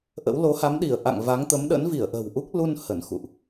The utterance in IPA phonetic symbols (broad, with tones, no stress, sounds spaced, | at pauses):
ʔ ə̰˧˥ w l o˨˦ h a˨˦ m ɗ i˧˩ ə̯ ʔ a̰˧˨ ŋ v a˨˦ ŋ t̪ ə˨˦ m ɗ ə̰˧˥ n v i˧˩ ə̯ ʔ ə̤˨˩ w ʔ u˦˥ k̚ l u˧ n h ə˧˩ n x ṵ˧˨ ʔ